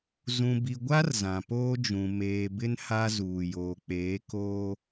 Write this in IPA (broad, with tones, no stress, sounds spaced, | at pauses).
z ũ˨ b i˨ ɡʷ a˦ r z ã˨ p oː˦ d͡ʒ ũ˨ m eː˨ b ɪ˦ n h a˦ z uː˨ j oː˨ k͡p eː˨˦ k oː˦